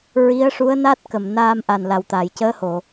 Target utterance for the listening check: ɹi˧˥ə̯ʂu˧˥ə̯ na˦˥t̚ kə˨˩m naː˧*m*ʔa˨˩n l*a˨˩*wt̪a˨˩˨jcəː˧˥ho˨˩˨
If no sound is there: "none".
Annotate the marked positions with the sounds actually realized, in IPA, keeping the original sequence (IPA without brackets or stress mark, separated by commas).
m, a˨˩